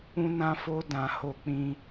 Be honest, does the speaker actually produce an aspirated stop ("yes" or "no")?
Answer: no